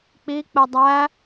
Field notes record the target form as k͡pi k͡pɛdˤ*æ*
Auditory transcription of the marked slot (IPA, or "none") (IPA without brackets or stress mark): æ